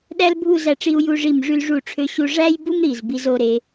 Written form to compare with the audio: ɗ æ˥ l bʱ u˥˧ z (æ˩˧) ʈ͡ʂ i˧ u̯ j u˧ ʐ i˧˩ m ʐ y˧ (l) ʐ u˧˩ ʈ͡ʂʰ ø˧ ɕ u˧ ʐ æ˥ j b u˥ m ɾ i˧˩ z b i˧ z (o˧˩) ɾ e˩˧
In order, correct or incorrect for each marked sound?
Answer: incorrect: æ˧, correct, incorrect: o˥˧

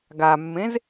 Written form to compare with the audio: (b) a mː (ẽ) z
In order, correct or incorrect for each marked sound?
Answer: incorrect: ɡ, correct

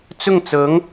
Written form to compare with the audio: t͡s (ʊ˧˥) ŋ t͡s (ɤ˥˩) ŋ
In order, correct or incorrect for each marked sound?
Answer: incorrect: ʊ˥˩, incorrect: ɤ˧˥

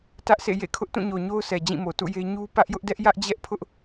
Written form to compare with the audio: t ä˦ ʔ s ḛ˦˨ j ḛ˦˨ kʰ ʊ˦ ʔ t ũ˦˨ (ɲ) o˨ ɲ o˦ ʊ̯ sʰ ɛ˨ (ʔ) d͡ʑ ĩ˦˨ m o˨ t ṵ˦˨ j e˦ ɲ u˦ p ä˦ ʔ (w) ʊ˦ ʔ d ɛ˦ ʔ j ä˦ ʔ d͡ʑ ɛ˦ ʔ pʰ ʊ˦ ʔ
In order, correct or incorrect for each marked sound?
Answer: correct, incorrect: none, incorrect: j

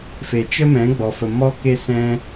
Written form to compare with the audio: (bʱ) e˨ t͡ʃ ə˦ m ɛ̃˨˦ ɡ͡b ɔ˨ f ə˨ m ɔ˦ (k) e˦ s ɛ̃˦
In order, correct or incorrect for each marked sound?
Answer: incorrect: f, correct

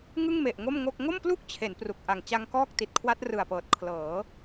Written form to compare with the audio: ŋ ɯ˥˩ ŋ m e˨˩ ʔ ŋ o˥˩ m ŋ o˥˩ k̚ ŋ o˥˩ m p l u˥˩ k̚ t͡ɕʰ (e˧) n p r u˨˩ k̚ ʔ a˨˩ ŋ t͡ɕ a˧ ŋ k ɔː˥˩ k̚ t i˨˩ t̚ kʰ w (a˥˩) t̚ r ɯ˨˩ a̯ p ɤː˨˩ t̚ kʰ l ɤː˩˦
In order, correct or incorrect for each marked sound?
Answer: incorrect: e˩˦, incorrect: a˦˥

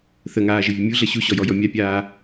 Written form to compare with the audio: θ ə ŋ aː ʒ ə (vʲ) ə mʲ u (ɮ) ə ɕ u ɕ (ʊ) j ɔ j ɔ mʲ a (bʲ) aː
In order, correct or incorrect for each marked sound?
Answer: correct, correct, incorrect: ɔ, incorrect: pʲ

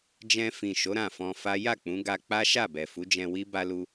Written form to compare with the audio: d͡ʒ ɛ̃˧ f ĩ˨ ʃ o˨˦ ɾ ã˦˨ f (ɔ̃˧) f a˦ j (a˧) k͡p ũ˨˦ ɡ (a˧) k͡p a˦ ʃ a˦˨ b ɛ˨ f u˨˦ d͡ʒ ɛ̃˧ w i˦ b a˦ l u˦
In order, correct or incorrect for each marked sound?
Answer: correct, incorrect: a˦˨, correct

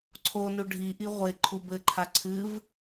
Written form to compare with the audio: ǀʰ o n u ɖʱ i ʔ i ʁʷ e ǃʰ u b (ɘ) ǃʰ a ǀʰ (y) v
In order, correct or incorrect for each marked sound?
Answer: correct, incorrect: ɨ

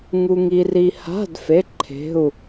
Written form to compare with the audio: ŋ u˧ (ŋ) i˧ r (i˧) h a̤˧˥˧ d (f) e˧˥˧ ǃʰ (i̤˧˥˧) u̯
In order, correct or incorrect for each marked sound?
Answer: correct, correct, correct, incorrect: e̤˧˥˧

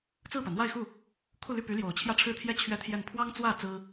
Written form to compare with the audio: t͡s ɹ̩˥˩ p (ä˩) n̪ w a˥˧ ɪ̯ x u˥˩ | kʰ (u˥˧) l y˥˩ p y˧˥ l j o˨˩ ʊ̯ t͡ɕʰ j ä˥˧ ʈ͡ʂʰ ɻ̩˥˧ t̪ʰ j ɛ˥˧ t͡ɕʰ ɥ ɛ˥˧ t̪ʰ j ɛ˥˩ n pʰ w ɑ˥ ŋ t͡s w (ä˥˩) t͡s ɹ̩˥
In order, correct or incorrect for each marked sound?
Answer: correct, correct, correct

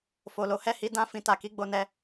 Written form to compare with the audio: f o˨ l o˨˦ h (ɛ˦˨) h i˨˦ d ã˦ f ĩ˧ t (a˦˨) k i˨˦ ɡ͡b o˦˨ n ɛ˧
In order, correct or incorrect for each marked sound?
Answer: correct, incorrect: a˨

